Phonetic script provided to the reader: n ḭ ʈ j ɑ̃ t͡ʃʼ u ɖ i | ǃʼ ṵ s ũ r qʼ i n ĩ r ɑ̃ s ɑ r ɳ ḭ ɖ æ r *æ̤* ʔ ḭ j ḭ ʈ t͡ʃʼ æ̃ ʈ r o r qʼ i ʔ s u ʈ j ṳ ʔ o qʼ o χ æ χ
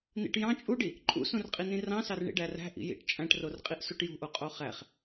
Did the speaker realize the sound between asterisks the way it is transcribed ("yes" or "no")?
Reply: yes